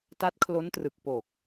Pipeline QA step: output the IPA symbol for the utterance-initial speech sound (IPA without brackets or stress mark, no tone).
t